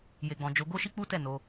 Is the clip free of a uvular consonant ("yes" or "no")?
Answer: yes